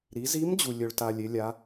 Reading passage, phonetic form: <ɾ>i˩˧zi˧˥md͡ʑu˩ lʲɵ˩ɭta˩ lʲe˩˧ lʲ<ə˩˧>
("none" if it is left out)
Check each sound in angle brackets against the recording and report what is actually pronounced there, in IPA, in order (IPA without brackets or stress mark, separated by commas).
ɾ, a˩˧